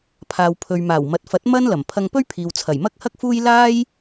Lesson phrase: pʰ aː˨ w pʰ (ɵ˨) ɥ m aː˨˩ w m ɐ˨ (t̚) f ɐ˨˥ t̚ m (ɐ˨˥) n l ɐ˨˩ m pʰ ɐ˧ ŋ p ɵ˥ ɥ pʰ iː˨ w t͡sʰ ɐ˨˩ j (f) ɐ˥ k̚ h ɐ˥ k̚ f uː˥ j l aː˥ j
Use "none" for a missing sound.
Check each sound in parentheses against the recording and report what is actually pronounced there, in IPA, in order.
ɵ˨, t̚, ɐ˥, m

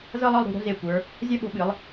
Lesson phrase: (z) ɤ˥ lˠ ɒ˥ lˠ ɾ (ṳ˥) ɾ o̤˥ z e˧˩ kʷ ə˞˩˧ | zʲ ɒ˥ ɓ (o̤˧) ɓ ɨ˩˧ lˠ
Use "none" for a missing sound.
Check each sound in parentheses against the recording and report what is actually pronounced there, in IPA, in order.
z, ṳ˩˧, o̤˧

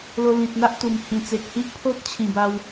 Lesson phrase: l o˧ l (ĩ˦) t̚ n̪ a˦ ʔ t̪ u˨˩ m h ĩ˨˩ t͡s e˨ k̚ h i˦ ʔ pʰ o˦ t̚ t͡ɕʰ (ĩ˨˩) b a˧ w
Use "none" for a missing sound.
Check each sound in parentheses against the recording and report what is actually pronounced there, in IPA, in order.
ĩ˨, ĩ˨˩

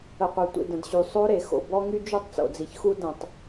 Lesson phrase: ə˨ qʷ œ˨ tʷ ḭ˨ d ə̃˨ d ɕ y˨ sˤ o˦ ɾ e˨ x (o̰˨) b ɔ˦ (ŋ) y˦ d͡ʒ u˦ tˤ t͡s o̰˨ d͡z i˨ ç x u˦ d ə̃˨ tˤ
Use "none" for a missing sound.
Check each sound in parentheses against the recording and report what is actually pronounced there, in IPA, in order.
o̰˨, ŋ

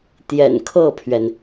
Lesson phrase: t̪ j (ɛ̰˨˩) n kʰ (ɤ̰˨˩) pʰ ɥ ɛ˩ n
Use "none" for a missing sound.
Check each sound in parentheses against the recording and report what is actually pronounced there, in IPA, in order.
ɛ̰˨˩, ɤ˥˩

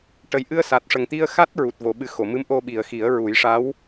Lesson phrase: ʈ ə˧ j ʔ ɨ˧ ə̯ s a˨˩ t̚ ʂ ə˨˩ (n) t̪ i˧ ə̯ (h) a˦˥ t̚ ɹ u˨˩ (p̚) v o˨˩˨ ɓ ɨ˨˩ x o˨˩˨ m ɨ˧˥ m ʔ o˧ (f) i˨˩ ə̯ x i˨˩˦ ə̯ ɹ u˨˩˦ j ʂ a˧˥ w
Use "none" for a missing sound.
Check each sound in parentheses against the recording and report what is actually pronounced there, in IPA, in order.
ŋ, x, t̚, ɓ

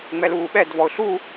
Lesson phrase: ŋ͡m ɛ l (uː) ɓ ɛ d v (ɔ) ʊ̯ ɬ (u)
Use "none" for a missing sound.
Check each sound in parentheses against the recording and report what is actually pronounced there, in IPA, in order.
uː, ɔ, u

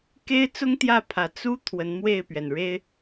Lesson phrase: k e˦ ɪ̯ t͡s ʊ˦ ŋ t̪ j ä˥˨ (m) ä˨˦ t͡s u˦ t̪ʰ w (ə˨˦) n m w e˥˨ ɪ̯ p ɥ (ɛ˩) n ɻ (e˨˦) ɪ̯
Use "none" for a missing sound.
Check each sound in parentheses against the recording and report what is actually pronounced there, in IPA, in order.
pʰ, ə˨˦, ɛ˩, e˦

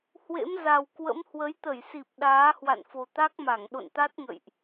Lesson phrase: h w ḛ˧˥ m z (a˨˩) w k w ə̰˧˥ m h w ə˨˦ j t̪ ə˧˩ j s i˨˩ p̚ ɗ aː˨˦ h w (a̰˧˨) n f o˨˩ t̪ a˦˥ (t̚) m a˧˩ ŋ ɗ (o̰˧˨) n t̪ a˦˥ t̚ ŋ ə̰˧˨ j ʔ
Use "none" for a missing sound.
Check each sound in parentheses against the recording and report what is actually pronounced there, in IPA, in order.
a˨˩, a̰˧˨, k̚, o̰˧˨

